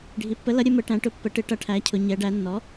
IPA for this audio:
ɖʱi˩˥pːə˩˥lʌ˩˥ ɾʲə˩˧mə˩˧ʈæ̃˩˧ ʈʊ˩˥pːə˩˥ʈɪ˩˥ ʈʌ˩˥ʈʰæ˩˥cʰʊ˩˧ ɲɛ˩˧ɖæ˩˧nːɔ˩˥

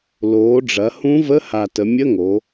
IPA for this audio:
loː˩˥ɖ͡ʐɐ˩˥ hũ˧˥və˧˥˧ha˨˩ tə˩˧mʲə˧˥˧ŋo˩˧

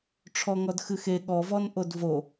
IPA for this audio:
ʈ͡ʂʰɔŋɔdxɨxe ɠɔvɔn ʔodvo

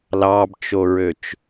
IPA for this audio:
lɑbt͡ʃoɹøt͡ʃ

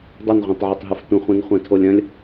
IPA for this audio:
dˤɐnʁʷẽtˤʕətˤɦɯf tʷə̃χʷĩnχʷɛ̃tʰolʲ ɐ̃lʲ

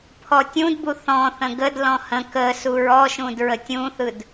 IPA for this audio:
pʰɔtʲũdbu θɔ̃θə̃ ɡədlɔ̃ hə̃ kə suɹɔʃũd ɹətʲũθɯd

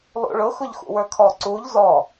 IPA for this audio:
lˠṵɭʊxʊʎ xṵwə˞kʰɔ ǀuʎ zɔ

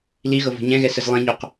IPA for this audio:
liɣɤ vo̤ɲɛ̃ɣɛ səzlˠĩɲoq

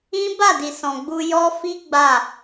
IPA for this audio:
ĩ˦ ba˦˨di˨sɔ̃˨ ɡ͡bu˧jɔ˦ fi˦ ɡ͡ba˦˨

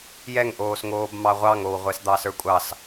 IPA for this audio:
jɛŋʔoːsŋoːb mɑʁʷɑŋow ʁʷɛsd̪ɑsə˞kʷʼɑs

